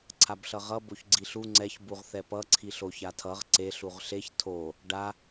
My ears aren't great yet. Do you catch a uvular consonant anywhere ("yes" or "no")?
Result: yes